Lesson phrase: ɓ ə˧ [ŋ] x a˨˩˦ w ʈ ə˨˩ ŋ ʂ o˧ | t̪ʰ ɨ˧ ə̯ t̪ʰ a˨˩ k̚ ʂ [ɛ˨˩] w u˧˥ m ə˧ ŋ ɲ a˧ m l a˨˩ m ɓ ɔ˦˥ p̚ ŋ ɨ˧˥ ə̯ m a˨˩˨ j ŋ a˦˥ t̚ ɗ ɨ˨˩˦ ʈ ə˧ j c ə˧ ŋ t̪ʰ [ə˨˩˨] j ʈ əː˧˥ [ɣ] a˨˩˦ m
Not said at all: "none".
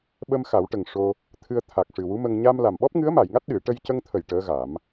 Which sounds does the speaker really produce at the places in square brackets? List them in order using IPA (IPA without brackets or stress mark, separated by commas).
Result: m, ɨ˨˩, ə˨˩˨, ɣ